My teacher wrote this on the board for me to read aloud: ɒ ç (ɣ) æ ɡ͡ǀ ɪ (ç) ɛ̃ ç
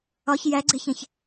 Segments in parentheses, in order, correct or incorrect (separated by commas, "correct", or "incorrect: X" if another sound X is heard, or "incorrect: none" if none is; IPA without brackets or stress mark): incorrect: j, correct